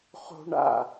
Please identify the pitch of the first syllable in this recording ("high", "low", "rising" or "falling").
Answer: low